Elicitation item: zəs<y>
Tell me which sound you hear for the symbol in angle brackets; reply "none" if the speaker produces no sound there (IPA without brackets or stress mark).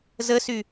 y